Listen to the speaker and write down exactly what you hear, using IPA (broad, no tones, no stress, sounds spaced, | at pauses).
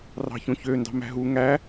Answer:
r ɑ̤ ç õ ç ø n d ɑ̤ m æ̤ ɦ u ŋ æ